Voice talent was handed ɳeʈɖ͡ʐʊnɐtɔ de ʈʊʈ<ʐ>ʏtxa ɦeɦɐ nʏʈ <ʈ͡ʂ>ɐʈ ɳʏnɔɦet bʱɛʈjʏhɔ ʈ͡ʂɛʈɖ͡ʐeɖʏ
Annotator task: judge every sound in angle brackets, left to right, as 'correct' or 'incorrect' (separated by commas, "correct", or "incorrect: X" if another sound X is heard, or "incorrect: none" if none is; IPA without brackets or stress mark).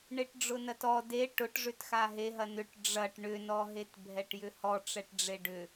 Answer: correct, incorrect: ɖ͡ʐ